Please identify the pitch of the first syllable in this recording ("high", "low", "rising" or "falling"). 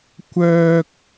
high